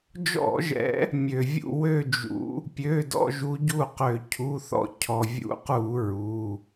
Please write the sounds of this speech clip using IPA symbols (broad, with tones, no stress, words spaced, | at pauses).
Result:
d͡ʒɔ̰˧˩˧ʒɛ̰˨˦ | mʲø˩vʲṵ˦˨ wø˦˨d͡ʒṵ˨˦ | pʲø˩˧˩dɔ̰˦˨ ʒu˨˦ɟu˦˨qø˧˩˧ cʰu˩˧˩θɔ̰˦˨ cʰɔ˩vʲṵ˨˦qu˧˩˧ ɹu˩˧˩